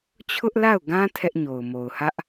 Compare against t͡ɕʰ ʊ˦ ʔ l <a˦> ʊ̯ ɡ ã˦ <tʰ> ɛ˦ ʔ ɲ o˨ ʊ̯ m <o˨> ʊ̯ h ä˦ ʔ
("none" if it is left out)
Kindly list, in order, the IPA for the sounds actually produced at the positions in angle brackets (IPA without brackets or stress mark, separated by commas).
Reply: a˦˨, tʰ, o˨